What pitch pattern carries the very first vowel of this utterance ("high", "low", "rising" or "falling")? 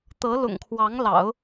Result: rising